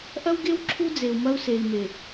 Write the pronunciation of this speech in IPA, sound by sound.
ʔ ɐ˦ w ɡ e˦ w ǁʰ u˦ d͡z e˨ u̯ m ɐ˦ u̯ s e˨ i̯ m e˨

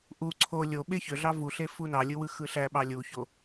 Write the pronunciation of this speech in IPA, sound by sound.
ʔ u ǀʰ o lʲ o ɓ e ç ø ɮ ɑ v u ɬ e f u n ɑ lʲ ɯ w ɯ x ɯ ɬ æ ɓ ɑ lʲ u ç o

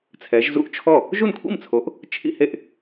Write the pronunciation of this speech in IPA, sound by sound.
t͡sʰ ɛ˨˦ ʒ z ṵ˥˩ ʔ t͡ʃʰ ɔ˥˩ | ʒ u˥˩ n kʷʰ ḭ˥˩ m t͡sʰ o˨˦ ʔ | t͡ʃʰ ḭ˥˧ h e˥˩ ʔ

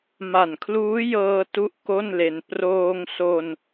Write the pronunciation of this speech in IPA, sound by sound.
m a˨˩ n kʰ l uː˦˥ j ɤː˧ t u˥˩ ʔ k o˥˩ n l e˧ n p r oː˧ ŋ s o˧ n

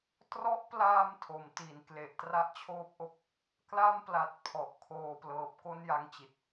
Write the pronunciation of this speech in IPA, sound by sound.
t r ɔ˦˥ ʔ p l aː˧ m tʰ o˩˦ m t i˩˦ n k l e˨˩ ʔ t r a˥˩ ʔ t͡ɕʰ oː˦˥ p̚ ʔ o˦˥ k̚ | k l a˥˩ m p l a˨˩ t̚ pʰ ɔ˨˩ ʔ kʰ oː˧ p l ɤː˨˩ p̚ k o˥˩ n j a˦˥ ŋ t͡ɕ i˨˩ t̚

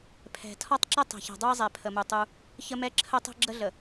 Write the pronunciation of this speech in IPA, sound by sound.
pʰ ɛ̤˨ tʰ ɒ˦ tˤ ǁ ə˦ tˤ e̤˨ ç ɛ̤˨ dˤ u˦ i̯ zˤ ɛ˨ pʰ ə˨ m u˨ tˤ u˦ | ç ə˦ m ɛ˦ ǁʰ ə˦ tˤ ɛ̤˦ ɡ͡ǁ ə˦ ɮ ə˨

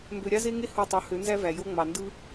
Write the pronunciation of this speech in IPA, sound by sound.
m b ø˧ ɾʲ ɑ˦ z e˦ ŋ e˦ h u˦˨ tˤ u˨˦ h ø˨˦ n z æ˦ v æ˨ j o˦ ŋ͡m ɑ˨ n d ɯ˧

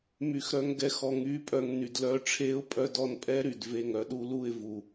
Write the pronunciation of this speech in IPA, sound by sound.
m y˧ x ɾ œ˦ ŋ ɡ ɛ˧ x ɔ˧ ŋ yː˦ pʼ œ˧ ŋ n y˨ d l œː˧ ʈ͡ʂʰ eː˦ ʊ̯ pʼ œ˦ d ɔ˦ n pʼ ɛ˦ ɾ y˨ d v e˦˨ ŋ œ˦ ɗ u˧ l u˦˨ ɪ̯ v u˨

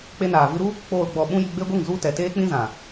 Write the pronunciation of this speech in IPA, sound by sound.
k͡p e˧ n aː˨ v ɨ˧ ɾ u˦ | k͡p oː˨ l ɡ͡b ɔ˨ ɓ ũ˦ j i˧ ɡ͡b e˦ ɡʷ ɨ˦˨ ŋ z u˦ t ɛ˨ t eː˦ k͡p ĩ˦ z ã˨

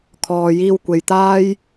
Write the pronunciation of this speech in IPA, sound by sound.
kʰ ɔː˨ j iː˧ w kʷ e˨ j t̪ aː˥ j

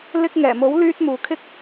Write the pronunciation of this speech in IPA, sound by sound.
l ɪ˧ k̚ ŋ ɛː˨˩ m o˨˥ w l yː˧ t̚ m uː˨ kʰ ɪ˥ k̚

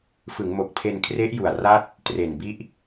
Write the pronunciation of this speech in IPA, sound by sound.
f ɯ˩˦ ŋ m o˨˩ k̚ pʰ e˧ n kʰ r e˦˥ ʔ j u˨˩ a̯ r a˥˩ t̚ | t r e˨˩ n b i˦˥ ʔ

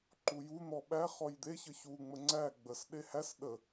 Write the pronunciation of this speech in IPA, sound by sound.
ǃ u j u n̪ ɔ ɓ æ χ ɔ j d̪ e ç ə ç u ŋ͡m ə ŋ͡ǀ æ ɡ͡b ə s ɗ e h æ s ɗ ə

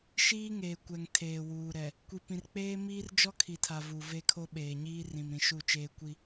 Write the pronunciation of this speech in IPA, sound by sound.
ʃ iː˦ ŋ eː˨ kʷ ɛ˨ ŋ tʰ eː˨ w uː˨ ɾ ɛ˨ | kʷ i˨ p ĩ˨ r k͡p eː˦ m iː˦ r d͡ʒ ɔ˦ kʰ i˨ tʰ a˨ v u˨ v e˦ kʰ o˦ ɓ eː˨ ɲ iː˦ r ĩ˨ m ɾ ĩ˨ ʃ u˦˨ t͡ʃ eː˦ kʷ i˦

